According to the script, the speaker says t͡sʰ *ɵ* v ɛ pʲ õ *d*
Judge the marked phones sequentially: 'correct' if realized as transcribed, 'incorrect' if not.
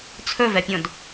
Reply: correct, correct

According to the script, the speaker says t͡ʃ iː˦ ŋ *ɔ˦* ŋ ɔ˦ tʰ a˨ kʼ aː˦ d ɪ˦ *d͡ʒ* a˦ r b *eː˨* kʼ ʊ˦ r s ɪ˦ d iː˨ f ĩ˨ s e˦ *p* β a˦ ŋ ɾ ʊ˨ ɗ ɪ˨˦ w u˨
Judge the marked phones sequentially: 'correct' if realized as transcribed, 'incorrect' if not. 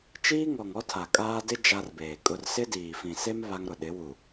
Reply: incorrect, correct, correct, incorrect

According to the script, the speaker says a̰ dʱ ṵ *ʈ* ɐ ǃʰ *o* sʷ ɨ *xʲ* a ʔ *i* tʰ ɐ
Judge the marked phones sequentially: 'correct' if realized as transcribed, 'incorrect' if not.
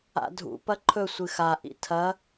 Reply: incorrect, incorrect, incorrect, incorrect

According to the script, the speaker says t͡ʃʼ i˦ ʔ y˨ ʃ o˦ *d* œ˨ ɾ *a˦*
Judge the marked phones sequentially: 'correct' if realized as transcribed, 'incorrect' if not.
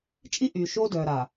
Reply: correct, incorrect

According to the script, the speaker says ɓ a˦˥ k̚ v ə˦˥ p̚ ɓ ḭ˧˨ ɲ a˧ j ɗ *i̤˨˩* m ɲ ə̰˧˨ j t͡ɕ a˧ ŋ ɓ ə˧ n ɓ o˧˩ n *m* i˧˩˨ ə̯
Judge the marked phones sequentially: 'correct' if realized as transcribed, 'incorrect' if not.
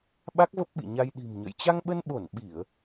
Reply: correct, incorrect

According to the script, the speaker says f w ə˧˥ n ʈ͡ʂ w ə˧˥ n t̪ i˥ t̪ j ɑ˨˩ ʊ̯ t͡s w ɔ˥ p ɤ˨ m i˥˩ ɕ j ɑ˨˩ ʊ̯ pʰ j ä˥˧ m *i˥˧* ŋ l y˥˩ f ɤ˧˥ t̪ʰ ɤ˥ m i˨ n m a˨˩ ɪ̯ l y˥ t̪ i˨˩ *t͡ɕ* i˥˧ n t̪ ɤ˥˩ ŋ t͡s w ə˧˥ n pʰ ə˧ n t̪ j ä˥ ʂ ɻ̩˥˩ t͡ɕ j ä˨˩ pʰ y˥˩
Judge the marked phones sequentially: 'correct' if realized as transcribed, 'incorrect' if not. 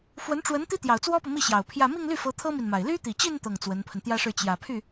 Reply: correct, correct

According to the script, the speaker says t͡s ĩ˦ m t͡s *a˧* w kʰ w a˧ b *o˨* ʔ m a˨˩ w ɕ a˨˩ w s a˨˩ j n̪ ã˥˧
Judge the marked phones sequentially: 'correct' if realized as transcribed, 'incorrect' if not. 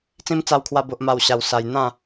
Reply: correct, correct

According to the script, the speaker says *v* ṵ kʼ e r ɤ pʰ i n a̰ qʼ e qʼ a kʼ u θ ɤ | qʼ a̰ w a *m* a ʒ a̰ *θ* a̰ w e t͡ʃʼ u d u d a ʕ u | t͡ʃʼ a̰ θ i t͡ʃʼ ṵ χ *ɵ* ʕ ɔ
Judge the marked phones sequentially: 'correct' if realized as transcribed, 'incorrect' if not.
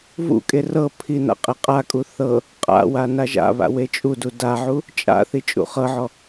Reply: correct, incorrect, incorrect, incorrect

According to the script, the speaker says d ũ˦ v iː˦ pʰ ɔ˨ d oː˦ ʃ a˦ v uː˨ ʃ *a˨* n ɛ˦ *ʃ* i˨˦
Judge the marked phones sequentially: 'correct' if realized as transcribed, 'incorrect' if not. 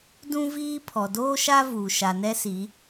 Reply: correct, incorrect

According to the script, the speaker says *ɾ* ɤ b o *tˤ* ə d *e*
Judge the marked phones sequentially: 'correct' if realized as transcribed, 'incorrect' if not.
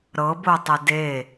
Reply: correct, correct, correct

